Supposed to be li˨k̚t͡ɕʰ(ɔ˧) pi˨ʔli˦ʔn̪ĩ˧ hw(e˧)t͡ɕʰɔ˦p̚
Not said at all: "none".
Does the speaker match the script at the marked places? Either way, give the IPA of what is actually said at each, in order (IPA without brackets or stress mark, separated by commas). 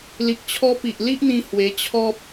ɔ˧, e˧